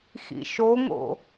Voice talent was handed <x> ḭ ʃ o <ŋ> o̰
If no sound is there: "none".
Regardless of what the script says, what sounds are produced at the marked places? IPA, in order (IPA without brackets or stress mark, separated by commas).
x, ŋ